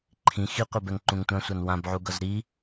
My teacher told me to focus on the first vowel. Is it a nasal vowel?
yes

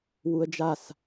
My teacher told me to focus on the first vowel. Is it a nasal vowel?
no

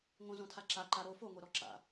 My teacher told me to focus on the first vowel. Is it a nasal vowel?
yes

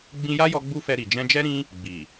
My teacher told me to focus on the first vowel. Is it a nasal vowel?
yes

